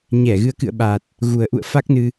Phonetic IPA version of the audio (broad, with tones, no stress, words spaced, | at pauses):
ɲɛ˧˩ɣɨ˨˦ə̯kɨ̰˧˨ə̯ɓa˨˩t̚ | ɣu˨˩ə̯ʔṵ˧˨ə̯ fa˦˥k̚nɨ˧